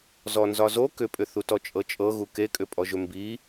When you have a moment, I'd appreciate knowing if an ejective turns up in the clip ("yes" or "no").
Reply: yes